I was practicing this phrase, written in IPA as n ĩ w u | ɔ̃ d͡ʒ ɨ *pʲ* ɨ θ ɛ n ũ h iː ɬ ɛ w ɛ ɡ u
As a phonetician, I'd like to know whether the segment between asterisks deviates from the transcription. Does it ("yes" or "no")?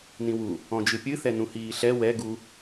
no